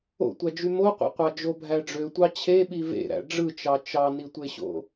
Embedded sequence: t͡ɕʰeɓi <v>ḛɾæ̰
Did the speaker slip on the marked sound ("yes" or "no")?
no